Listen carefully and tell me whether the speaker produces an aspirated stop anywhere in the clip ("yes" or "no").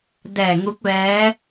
no